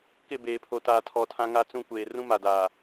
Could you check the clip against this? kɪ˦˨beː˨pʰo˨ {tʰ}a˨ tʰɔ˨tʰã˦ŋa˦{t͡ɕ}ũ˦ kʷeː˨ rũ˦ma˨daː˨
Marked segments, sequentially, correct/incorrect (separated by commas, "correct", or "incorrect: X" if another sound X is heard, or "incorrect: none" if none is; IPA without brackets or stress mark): incorrect: t, incorrect: t͡s